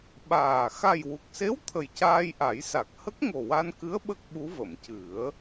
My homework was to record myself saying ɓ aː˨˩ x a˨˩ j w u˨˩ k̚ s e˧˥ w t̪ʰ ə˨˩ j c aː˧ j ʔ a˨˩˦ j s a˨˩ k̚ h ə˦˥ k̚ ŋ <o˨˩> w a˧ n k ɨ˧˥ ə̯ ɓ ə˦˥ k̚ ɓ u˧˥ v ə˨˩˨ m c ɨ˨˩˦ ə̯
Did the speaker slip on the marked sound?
no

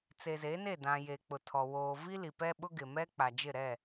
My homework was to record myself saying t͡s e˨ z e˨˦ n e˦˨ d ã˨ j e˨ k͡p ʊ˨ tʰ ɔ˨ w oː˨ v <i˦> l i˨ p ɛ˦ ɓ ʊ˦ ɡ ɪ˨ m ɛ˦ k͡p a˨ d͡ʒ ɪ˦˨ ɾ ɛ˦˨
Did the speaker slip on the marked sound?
no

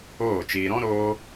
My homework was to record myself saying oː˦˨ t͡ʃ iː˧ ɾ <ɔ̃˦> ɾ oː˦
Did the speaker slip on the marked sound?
no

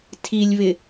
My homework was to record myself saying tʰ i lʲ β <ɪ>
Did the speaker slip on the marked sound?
no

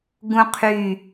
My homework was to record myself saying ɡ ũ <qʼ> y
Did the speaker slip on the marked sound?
yes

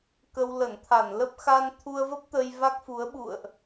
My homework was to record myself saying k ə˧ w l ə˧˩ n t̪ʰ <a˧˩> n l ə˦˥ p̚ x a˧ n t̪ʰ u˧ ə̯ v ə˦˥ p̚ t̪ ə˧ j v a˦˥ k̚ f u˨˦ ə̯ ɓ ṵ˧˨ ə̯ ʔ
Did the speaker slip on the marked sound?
no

